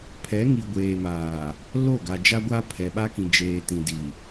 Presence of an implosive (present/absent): present